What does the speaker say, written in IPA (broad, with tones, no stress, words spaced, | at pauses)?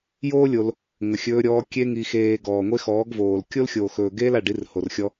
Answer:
joː˦ lʲo˧l | ŋə˨xʲɵː˧ɾʲɔː˧ kʲe˧ŋi˨xeː˨ ɡɔː˨ŋʷe˦xɔː˨˦ɡvoː˨l kʲo˦lxʲoː˨ xɵː˨ ɡeː˦la˨ɖi˨˦r ho˨rxʲɔ˦